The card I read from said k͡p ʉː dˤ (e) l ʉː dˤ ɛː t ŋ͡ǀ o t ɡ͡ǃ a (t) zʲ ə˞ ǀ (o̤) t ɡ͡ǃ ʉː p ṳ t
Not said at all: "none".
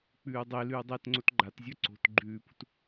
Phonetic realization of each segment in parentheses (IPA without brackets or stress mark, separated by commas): e, t, o̤